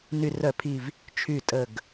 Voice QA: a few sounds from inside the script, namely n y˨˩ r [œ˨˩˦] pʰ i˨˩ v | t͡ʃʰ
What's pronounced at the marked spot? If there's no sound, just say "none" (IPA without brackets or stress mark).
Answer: œ˨˩˦